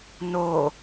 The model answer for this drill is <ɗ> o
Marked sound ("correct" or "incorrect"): incorrect